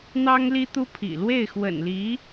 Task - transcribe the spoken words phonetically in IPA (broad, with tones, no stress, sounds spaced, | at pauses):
n̪ ɑ˥ ŋ l i˥ t̪ u˥ pʰ ḭ˨˩ l w e˥˩ ɪ̯ x w ə̰˨˩ n l i˧˥